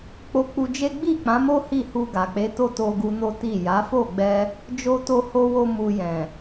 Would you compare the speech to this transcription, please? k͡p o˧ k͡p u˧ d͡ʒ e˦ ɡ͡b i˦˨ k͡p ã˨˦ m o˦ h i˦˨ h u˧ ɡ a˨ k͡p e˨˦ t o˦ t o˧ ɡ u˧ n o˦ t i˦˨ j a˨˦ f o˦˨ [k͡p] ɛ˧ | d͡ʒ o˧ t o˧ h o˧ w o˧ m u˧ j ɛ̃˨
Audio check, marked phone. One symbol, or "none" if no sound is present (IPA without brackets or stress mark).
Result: ɡ͡b